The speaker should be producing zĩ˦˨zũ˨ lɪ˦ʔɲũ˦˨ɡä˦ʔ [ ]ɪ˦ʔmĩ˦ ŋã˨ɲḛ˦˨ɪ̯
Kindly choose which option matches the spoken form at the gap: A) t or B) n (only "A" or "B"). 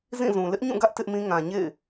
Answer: A